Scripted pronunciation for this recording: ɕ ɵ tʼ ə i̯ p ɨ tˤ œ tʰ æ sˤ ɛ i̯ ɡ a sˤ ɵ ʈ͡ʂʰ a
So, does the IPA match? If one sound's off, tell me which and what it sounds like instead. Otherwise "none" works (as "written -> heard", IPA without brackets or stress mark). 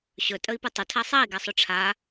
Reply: œ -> ɵ